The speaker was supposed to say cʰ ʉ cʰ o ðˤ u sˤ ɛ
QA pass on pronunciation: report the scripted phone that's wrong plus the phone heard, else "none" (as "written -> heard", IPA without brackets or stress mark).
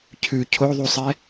none